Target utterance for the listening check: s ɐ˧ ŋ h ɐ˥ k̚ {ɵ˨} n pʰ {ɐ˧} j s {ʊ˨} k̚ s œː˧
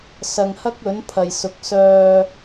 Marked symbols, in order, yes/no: no, no, yes

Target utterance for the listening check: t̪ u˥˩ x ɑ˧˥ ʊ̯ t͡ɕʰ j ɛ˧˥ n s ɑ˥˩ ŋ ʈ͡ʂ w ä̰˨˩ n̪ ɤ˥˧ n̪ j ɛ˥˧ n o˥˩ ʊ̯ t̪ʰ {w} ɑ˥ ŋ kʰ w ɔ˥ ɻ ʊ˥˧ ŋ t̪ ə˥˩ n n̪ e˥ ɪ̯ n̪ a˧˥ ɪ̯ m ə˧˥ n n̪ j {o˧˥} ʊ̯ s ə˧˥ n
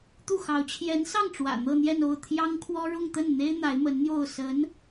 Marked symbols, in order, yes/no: no, no

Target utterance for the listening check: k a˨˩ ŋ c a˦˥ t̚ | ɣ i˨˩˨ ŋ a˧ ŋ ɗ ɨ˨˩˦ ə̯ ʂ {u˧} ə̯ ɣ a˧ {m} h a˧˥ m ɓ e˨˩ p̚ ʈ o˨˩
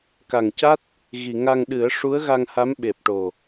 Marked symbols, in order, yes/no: no, no

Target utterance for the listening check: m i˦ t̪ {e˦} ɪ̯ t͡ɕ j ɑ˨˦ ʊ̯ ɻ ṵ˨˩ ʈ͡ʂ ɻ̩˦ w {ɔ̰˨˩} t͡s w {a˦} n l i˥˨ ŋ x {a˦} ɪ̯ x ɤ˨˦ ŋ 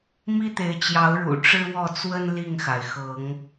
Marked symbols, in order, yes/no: no, no, no, no

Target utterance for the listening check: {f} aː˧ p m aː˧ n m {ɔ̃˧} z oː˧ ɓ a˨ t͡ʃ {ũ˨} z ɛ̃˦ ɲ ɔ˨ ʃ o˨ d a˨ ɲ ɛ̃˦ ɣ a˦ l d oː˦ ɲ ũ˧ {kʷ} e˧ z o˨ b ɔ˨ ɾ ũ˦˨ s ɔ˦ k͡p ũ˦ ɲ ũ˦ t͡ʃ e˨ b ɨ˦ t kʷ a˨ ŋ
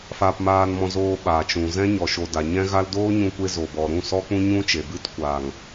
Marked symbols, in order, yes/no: yes, yes, yes, yes

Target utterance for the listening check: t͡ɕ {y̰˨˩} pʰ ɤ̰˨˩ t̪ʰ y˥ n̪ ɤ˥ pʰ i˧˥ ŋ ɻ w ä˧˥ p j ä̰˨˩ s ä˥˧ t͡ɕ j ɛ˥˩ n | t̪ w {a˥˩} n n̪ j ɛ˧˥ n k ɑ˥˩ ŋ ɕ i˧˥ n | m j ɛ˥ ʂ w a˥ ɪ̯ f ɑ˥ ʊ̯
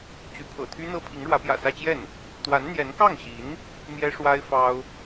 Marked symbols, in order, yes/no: no, no

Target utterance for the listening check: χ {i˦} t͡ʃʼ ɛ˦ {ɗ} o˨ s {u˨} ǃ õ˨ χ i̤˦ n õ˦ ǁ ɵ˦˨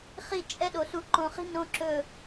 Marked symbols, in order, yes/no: yes, yes, yes

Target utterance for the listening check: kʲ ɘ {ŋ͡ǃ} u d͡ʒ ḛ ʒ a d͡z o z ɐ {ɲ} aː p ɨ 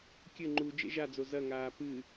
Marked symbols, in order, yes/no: yes, no

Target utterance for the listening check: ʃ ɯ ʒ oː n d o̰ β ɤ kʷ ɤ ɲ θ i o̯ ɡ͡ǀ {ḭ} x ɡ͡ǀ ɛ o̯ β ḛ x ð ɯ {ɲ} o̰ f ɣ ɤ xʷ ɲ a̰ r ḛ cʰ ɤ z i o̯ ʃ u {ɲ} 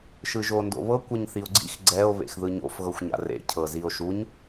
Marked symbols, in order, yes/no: yes, yes, yes

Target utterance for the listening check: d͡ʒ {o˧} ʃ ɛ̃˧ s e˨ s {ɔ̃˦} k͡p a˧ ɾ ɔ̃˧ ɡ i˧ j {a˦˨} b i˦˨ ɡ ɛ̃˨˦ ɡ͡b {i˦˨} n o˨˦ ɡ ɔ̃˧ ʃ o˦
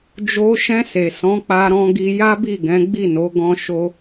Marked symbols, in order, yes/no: yes, no, no, yes

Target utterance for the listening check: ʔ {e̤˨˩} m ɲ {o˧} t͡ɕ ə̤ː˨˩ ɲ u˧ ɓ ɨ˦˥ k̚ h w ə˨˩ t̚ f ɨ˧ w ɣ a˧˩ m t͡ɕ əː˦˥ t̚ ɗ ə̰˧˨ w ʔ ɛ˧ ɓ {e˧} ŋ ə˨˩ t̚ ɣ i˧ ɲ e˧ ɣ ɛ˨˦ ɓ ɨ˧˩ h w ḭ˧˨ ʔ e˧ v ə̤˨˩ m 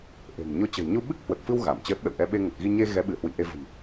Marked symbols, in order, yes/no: yes, yes, yes

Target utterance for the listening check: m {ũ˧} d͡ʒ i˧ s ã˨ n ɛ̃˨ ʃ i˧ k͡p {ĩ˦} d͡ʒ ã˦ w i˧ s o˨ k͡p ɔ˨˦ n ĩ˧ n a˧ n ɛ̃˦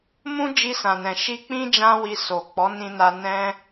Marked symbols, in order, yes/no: no, yes

